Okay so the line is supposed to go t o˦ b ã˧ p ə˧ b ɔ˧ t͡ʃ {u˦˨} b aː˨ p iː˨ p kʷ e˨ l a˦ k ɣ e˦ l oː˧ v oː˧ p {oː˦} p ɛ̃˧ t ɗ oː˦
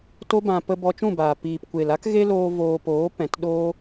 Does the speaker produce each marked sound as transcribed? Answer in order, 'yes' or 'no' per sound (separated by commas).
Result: no, no